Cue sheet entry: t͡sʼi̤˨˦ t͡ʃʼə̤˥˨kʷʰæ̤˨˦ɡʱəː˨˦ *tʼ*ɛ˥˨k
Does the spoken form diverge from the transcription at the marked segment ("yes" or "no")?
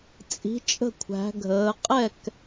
yes